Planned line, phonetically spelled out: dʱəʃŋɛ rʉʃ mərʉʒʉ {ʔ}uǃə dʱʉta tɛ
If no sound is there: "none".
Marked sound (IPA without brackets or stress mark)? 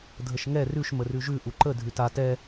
ʔ